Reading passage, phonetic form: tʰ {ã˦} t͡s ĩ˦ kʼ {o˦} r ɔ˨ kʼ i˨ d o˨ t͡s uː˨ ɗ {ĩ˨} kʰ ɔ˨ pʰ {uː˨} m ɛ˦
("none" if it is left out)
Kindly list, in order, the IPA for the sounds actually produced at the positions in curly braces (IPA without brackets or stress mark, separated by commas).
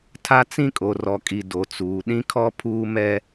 a˦, o˨, ĩ˨, uː˨